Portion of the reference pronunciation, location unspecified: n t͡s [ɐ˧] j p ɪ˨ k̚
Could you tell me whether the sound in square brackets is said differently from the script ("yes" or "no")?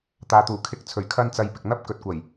no